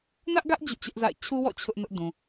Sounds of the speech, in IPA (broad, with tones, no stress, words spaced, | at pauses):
nä˦ʔɡä˦ʔ d͡ʑṵ˦˨t͡ɕʊ˦ʔ za̰˦˨ɪ̯ t͡ɕʰu˦wɔ̰˦˨ t͡ɕʰʊ˦ʔnʊ˦ʔdũ˨